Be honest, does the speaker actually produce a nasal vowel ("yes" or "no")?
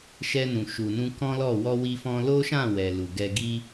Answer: yes